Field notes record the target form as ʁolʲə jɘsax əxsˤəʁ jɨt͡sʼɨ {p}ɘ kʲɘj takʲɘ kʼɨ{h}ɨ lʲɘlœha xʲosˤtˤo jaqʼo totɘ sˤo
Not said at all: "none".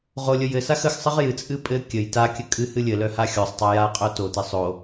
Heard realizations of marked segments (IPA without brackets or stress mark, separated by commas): pʼ, h